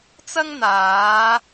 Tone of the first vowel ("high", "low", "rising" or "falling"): high